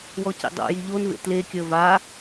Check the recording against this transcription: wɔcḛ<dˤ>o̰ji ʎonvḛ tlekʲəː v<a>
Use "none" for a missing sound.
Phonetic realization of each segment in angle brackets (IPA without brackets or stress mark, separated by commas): dˤ, a